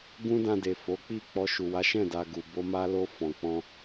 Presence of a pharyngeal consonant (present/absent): absent